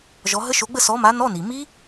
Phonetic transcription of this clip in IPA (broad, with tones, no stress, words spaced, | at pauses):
ʒɔ˨˥ ɦə˦˥ʃo˨˥ɡ͡bə˥˧ sɔ˨˥ma˨˥ nɔ˧˥˧ni˩ mi˦˥